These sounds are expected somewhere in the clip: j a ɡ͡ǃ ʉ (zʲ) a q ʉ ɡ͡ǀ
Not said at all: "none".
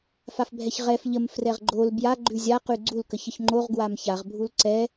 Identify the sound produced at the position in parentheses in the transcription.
zʲ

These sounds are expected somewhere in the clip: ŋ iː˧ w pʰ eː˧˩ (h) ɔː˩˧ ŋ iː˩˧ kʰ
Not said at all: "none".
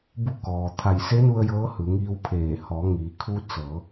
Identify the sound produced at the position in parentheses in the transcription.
h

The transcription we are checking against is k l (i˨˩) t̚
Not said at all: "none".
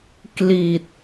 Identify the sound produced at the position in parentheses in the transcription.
i˨˩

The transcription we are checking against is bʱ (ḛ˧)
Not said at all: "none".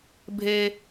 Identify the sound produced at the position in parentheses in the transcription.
e˧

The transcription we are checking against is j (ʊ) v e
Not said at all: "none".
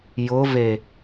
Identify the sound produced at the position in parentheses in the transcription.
ʊ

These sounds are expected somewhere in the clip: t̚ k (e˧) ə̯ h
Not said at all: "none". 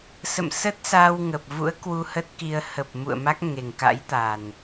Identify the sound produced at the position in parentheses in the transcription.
i˧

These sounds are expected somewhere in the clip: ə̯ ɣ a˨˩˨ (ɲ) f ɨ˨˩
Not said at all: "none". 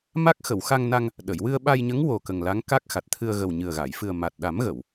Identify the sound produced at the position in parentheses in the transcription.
j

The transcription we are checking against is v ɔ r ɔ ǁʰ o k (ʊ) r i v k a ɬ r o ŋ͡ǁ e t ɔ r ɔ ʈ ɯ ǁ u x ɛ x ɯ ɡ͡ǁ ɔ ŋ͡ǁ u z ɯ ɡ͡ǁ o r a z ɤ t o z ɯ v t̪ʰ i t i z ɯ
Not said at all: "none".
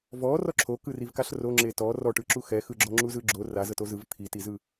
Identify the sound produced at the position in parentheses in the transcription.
ɯ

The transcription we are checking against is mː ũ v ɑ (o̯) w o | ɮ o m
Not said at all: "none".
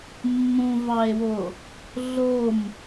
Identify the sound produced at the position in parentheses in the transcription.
e̯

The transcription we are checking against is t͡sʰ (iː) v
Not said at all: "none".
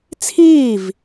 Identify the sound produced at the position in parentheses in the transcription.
iː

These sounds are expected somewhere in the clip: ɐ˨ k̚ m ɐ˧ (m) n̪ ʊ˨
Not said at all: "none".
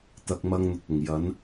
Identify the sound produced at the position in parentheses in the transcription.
ŋ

